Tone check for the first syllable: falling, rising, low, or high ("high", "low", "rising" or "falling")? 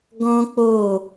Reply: high